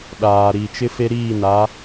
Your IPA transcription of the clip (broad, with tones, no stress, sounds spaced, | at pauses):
ɗ aː˨ ɾ iː˨ t͡ʃ ɪ˦ f e˦ ɾ iː˦˨ n a˨˦